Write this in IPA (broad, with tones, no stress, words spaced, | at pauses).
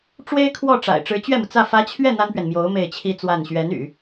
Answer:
ʈ͡ʂwe˥ɪ̯kʰwɔ˥˩ʈ͡ʂa̰˨˩ɪ̯ ʈ͡ʂɻ̩˧˥t͡ɕɥɛ˥˩mu˩t͡sä˥˩ fä˧˥t͡ɕʰɥɛ˥˩ n̪a˥npɥɛ˨nmjo˧˥ʊ̯ me˥˩ɪ̯t͡ɕʰi˥t͡swa˥˩n ɕɥɛ˧˥n y̰˨˩˦